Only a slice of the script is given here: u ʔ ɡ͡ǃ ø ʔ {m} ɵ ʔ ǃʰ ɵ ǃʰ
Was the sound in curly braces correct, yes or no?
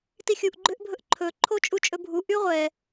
no